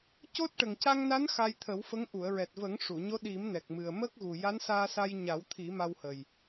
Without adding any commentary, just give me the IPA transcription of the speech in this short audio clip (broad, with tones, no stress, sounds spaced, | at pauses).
c o˦˥ t̚ ʈ ə˨˩ ŋ c a˧ ŋ n a˧˥ n x a˧ j t̪ʰ ə˨˩˦ w f ə˧˥ ŋ ʔ u˨˩˨ ə̯ ɹ ɛ˨˩ t̚ v ə˨˩˦ ŋ ʂ u˨˩˨ ɲ o˧˥ ɗ i˨˩˦ m n ɛ˨˩ k̚ m ɨ˨˩ ə̯ m ə˦˥ k̚ ɣ u˨˩ j a˧˥ n s aː˧ s a˧ j ɲ a˨˩˦ w t̪ʰ i˨˩˦ m a˧ w h ə˨˩ j